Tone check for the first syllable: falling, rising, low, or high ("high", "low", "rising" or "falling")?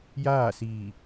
falling